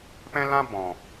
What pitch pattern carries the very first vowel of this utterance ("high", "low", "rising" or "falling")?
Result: high